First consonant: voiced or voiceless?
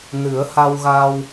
voiced